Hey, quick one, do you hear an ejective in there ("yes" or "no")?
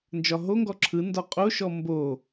yes